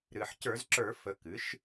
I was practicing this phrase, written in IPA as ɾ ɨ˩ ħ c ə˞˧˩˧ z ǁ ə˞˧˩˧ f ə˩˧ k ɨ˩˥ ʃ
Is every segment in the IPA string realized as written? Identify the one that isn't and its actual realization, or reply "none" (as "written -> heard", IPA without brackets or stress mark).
none